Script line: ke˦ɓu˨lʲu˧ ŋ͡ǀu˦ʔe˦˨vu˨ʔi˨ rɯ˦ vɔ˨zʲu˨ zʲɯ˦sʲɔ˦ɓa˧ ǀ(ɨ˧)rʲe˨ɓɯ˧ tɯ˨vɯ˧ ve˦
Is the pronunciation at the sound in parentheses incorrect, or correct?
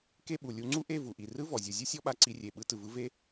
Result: incorrect